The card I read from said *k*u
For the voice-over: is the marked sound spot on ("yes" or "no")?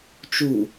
no